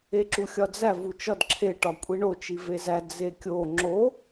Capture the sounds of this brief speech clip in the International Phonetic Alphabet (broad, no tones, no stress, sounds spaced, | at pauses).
e ǁ u xʲ ɒ d͡z æ v u t͡ʃ ɒ d ǁʰ e ʈ ɒ kʷʼ i ɳ o t͡ʃ i v e z æ d͡z e kʲ o ŋ͡ǁ o